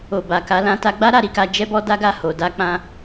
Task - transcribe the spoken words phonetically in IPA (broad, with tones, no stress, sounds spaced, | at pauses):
o˨ b a˨ k a˨˦ l ã˧ t a˧ ɡ͡b a˦ ɾ a˧ ɾ i˧ k a˧ d͡ʒ ɛ˦ b ɔ˦ d a˦ ɡ a˦˨ h o˨ d a˧ k͡p ã˧